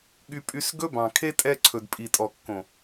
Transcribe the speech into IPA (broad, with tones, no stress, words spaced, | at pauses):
ɠy˧pʼy˧s ɡɵ˦bɑ̃˨kʰe˦ tʼɛ˧ ǀʰɵ˨dpʼi˨tʼɔ˨kːõ˨